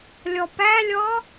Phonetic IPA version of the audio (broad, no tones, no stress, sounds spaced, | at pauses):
lʲ ɔ p æ lʲ ɔ